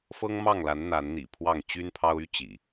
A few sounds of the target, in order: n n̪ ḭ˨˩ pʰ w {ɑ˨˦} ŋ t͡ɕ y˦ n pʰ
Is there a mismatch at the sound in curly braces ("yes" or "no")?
yes